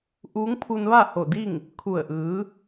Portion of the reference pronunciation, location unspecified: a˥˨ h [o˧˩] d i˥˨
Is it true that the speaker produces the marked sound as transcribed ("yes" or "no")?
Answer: yes